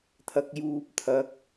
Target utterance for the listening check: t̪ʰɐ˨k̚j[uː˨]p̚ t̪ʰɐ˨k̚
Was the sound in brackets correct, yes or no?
yes